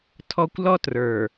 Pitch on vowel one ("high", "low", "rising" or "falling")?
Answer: high